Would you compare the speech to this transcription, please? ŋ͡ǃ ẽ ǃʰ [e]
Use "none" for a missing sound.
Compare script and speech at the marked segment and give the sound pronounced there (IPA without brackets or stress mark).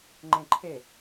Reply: e